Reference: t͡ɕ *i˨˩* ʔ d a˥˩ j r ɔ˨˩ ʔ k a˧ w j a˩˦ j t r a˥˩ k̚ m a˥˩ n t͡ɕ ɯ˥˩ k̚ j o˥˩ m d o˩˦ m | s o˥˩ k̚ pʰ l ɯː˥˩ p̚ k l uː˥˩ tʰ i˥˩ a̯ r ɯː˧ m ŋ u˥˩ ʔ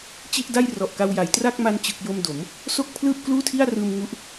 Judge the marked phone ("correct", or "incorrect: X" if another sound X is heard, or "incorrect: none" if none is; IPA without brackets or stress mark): incorrect: i˥˩